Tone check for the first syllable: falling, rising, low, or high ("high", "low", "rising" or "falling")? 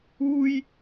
high